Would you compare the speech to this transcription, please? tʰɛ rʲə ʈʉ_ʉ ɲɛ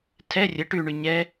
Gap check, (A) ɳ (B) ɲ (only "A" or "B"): A